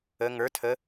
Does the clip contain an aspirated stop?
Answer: yes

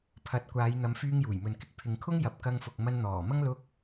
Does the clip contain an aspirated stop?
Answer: yes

